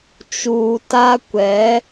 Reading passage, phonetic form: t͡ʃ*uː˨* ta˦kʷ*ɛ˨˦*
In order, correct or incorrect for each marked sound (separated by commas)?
correct, correct